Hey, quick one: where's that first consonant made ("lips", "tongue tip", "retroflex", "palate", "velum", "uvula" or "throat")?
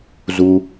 tongue tip